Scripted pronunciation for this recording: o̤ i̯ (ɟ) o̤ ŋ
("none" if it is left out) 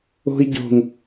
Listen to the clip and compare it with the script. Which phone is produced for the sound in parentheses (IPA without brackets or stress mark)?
ɟ